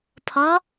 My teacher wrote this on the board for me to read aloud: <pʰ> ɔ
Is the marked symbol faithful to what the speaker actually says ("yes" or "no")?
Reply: yes